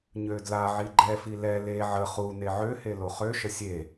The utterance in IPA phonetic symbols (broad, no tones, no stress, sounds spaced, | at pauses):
ɲ ø d l a ʕ i ɡ͡ǃ ɛ f i l ɛ l e ʕ ə χ u n e ʕ ø h e l o χ ø ʃ ə sʲ e